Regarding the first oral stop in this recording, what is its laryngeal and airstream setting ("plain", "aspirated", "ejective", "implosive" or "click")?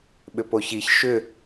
implosive